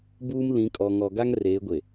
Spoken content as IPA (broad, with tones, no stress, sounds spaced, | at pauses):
b uː˦ m l ĩ˨˦ kʼ ɔ˨ ŋ ɔ˨ ɡ a˦ ŋ r eː˨˦ ɡʷ e˨